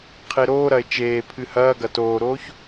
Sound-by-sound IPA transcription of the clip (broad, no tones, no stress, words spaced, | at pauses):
qʰeɾoːɾɐe̯ t͡ʃeːpʰɨ hɐːɡɐ toːɾoːç